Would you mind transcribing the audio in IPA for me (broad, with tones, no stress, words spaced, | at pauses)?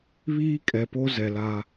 βiː˦kʼɛ˨po˦ zɛ˨la˦